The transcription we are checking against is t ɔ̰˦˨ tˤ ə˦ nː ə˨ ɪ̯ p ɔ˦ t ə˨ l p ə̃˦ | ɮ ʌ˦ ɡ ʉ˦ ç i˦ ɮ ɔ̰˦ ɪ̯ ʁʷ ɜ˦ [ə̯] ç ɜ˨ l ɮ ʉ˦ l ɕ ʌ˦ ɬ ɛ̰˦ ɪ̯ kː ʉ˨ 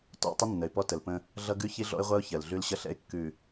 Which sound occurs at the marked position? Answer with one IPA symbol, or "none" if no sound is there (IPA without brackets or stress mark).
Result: ʊ̯